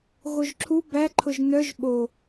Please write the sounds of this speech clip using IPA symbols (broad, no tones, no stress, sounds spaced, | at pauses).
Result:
ɣ o ʒ ǁʰ u b æ ǃʰ ʊ ʒ n œ ʒ ɓ o